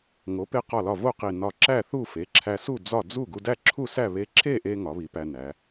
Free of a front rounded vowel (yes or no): yes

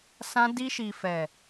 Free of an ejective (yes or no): yes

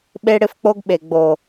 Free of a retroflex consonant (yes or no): no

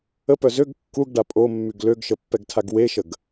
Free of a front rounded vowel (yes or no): no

